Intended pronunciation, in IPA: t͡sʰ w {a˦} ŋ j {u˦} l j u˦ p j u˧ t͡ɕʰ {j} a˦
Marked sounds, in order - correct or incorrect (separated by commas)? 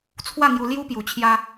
incorrect, incorrect, correct